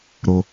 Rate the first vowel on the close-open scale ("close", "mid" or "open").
mid